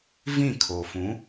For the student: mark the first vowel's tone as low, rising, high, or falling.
falling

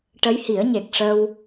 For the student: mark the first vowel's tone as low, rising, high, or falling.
rising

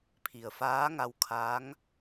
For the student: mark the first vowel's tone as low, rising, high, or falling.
low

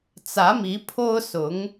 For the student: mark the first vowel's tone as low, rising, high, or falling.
rising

